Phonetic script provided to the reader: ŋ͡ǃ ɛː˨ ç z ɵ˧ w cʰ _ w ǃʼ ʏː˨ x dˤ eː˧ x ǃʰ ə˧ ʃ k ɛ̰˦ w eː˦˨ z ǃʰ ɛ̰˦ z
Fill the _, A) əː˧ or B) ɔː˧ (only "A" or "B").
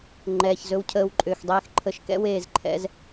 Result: A